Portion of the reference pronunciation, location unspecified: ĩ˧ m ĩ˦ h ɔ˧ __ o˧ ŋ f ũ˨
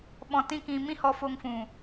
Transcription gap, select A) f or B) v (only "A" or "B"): A